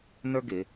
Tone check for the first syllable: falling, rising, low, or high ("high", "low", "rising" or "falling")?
high